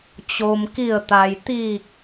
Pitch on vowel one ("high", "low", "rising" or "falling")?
low